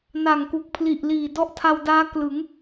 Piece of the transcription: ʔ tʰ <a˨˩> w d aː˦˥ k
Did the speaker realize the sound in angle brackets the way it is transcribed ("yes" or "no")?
no